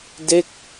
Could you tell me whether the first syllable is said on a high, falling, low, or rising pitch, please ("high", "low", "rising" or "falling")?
falling